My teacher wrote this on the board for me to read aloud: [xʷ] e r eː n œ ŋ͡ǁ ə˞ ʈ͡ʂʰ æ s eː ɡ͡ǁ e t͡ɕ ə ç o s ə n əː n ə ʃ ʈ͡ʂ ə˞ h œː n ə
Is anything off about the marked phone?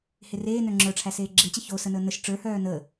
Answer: yes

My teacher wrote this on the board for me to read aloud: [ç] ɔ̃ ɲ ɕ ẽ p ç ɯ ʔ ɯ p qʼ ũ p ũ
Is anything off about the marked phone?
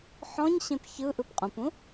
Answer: yes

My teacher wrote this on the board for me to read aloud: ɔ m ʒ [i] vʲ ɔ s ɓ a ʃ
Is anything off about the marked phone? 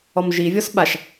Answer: no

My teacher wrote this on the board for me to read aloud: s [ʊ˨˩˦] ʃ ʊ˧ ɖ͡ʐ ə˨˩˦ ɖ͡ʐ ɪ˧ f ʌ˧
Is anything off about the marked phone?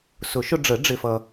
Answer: no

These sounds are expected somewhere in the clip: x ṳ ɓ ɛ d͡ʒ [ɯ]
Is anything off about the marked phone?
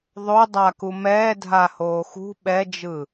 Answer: no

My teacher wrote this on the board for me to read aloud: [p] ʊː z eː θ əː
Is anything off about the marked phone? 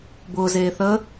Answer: yes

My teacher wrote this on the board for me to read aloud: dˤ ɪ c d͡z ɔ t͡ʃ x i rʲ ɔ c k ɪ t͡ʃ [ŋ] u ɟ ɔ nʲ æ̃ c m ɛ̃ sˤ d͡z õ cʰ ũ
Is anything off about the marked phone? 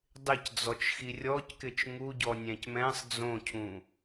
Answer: no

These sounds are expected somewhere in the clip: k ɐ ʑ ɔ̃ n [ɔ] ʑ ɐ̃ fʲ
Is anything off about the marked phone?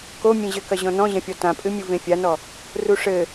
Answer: yes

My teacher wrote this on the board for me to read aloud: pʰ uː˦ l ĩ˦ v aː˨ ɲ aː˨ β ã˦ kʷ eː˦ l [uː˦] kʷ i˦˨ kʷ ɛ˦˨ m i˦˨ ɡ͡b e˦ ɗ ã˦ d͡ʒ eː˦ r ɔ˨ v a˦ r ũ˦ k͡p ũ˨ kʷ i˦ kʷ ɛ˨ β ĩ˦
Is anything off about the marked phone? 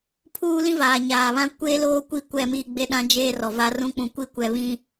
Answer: yes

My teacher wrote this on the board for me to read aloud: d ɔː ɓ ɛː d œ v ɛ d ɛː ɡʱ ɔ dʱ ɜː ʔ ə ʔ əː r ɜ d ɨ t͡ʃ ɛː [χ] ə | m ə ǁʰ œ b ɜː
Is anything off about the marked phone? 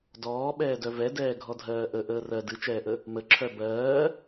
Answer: yes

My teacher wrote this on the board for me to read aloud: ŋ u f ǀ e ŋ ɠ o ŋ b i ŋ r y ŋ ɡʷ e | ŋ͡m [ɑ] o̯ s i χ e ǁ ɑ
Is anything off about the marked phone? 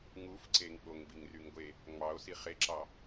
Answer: no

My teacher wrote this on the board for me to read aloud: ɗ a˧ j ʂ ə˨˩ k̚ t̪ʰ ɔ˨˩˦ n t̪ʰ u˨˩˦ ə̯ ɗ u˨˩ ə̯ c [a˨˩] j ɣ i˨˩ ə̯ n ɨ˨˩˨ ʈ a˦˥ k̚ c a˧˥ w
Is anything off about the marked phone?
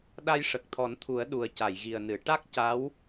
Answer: yes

